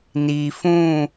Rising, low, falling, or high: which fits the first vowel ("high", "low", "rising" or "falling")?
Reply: low